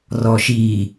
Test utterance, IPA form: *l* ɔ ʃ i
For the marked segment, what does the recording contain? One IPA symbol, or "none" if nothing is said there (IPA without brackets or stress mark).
r